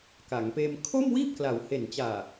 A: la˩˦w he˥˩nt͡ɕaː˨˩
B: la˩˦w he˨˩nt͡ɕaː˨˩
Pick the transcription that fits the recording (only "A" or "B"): B